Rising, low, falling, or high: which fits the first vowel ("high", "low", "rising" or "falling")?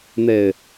low